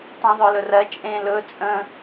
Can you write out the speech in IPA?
tˤ ẽ ðˤ œ l ɵ r ɜ t͡ʃʼ ẽ l ɵ t͡sʼ ə̃

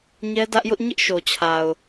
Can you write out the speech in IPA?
ɲ ɛ˦ d ä˦ ʔ j ʊ˦ ʔ ɲ ɪ˦ ʔ ʃ o˨ t͡ɕʰ a˨ ʊ̯

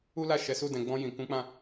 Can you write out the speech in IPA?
u˦ l a˦˨ ʃ ɛ˨˦ s u˦˨ d ɛ̃˨ ɡ͡b ɔ̃˧ j ĩ˨ k ũ˨˦ k͡p ã˦˨

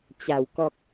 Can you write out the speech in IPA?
t͡ɕ a˨˩ w k ɔ˨ k̚

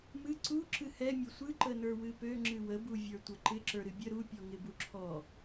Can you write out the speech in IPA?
m ɨ ǀ u ǁ ɨ h ɛ mʲ o sʷ ɨ ǃ ə n ə˞ w ɨ p ø ŋ͡ǁ ɨ w ə b u vʲ ə˞ tʷ ə ǃ ɪ ǁ ə˞ ɾ ɨ bʲ ə ɾ u pʲ ɔ ŋ ɪ b u ǁʰ ɔ

